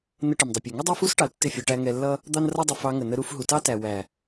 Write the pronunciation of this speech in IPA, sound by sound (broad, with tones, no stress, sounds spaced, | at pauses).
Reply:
n ə˧ ʈ ɪ˨ m dˤ ə˨ pʲ ɛ˨ ŋ ə˦ dˤ ɜ˦ f u˦ s ʈ ɑ˨ l tː ɪ˦˨ fʲ ɒ˧ ʈ æ˧ ŋ ɛ˧ lː ʌ˦ | d̪ ɑ˦ n r ʌ˦ dˤ ɪ˧ f ɑ˧ ŋ ə˨ n ə˧ ɾ u˧ f ɦ u˨ t ɑ˦ t æ˨ w æ˨